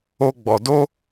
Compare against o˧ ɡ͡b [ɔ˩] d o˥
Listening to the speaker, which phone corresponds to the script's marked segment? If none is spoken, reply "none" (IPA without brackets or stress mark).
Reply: ɔ˩